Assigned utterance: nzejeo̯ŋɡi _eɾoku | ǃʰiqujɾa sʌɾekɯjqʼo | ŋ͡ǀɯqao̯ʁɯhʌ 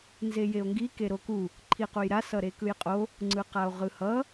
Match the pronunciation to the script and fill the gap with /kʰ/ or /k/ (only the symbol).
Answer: k